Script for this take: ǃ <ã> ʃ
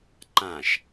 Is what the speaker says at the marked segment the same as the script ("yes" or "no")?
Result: yes